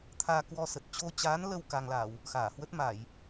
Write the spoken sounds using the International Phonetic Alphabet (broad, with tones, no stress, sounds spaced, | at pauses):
t̪ʰ aː˧ k w ɔ˧ s ə˨˩ t̚ t͡ɕ o˧ t͡ɕ aː˨˦ n l ə˧ w k a˧ ŋ l a˧˩˨ w | x aː˧˩ h w ə˦˥ t̚ m a˧˩˨ j